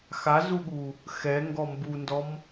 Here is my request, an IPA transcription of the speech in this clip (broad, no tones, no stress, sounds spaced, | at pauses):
x a z u ɠ u | x ɛ ŋ ɡ ɔ m b u n d ɔ m